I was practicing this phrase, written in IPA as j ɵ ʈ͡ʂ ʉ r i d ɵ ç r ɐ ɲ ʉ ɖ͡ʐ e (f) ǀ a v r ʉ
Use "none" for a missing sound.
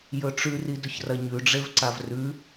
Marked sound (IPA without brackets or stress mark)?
v